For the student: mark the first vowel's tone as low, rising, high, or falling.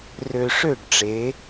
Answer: low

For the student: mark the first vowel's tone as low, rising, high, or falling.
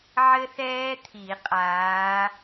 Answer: high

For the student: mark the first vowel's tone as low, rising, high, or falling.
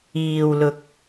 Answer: low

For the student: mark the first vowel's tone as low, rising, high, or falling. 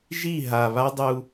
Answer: falling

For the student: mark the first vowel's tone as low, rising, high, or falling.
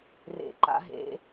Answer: low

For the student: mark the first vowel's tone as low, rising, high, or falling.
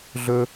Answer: high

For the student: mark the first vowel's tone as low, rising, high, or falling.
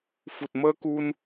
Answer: low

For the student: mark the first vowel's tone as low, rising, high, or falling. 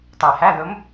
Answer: low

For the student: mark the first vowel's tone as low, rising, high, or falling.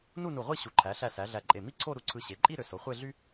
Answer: falling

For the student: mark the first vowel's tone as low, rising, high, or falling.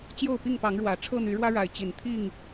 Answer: falling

